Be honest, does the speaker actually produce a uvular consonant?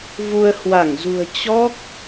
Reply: no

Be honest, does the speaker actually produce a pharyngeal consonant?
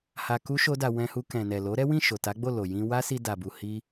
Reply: no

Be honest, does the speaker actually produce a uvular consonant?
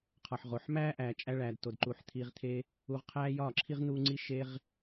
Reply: yes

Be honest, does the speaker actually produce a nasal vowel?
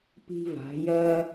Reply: no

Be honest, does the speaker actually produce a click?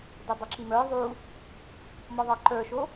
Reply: yes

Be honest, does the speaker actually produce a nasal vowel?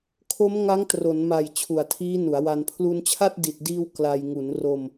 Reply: no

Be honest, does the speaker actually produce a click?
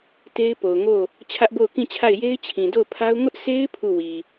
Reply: no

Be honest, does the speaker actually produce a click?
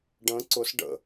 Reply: yes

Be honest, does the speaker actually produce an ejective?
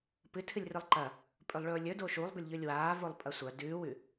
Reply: yes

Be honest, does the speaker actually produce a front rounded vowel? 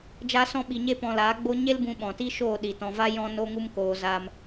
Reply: no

